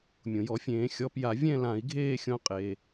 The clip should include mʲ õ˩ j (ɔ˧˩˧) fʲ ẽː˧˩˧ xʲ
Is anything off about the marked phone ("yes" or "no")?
no